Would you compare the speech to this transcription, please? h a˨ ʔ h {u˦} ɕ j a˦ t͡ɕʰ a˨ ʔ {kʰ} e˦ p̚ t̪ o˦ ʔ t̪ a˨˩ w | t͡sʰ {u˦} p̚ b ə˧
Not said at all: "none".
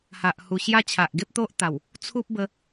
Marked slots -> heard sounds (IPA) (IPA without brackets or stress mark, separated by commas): u˨˩, ɡ, u˦